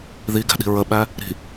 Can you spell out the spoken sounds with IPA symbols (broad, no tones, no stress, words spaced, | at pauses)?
ðiɡæ̤ɗi̤ ɹəɓæ | ɾi̤